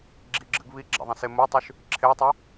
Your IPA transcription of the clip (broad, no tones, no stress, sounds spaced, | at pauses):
ɡ͡ǁ i ɡ͡ǁ ɨ ɡ β i ɡ͡ǁ a̰ ðˤ ĩ s e m u tˤ ʉ ʃ | ǁʰ e tˤ ɵ